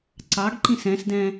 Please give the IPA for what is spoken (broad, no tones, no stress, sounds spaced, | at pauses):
ǀ ɑ ɡ ǃ ĩ s ɛ̃ s d ɛ̃